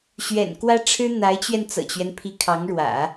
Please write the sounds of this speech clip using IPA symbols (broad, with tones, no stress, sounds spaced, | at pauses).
ɕ ɥ ɛ̰˨˩ n k w ä˥ ʈ͡ʂʰ ɻ̩˥ n̪ a˧˥ ɪ̯ t͡ɕ ɥ ɛ˧ n t͡s ɤ̰˨˩ t͡ɕ ɥ ɛ˦ n pʰ i˧˥ kʰ ɑ˧˥ ŋ ɻ w ä̰˨˩˦